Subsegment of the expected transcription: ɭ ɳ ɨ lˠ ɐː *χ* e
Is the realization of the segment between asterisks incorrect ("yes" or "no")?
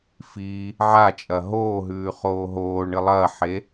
yes